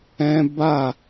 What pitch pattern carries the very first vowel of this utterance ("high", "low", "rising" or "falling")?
high